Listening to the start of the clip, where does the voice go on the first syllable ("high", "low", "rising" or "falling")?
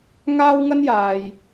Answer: high